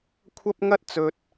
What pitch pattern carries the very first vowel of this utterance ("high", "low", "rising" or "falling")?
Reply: high